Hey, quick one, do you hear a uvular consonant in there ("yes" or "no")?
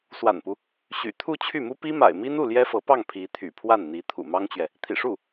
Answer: no